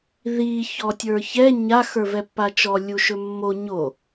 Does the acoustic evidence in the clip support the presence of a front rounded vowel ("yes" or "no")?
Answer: no